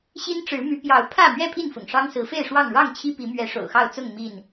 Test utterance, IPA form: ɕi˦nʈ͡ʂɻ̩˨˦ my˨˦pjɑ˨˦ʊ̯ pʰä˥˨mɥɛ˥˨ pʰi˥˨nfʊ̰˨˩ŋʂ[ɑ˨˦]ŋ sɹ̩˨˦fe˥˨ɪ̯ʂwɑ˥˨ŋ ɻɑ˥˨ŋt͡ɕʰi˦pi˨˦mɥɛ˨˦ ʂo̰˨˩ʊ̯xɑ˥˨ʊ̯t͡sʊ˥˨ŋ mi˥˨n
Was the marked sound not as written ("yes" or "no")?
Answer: yes